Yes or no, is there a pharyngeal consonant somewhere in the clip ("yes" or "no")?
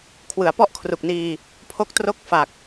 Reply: no